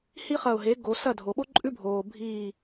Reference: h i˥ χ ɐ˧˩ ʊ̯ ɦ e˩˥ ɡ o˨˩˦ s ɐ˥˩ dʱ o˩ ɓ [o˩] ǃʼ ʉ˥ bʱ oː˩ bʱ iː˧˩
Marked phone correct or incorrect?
incorrect